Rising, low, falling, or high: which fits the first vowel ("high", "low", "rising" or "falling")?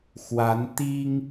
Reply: rising